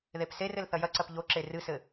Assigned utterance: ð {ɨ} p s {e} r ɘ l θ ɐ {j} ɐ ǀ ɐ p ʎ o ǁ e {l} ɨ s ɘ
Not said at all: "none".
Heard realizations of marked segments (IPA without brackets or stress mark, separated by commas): e, e, j, r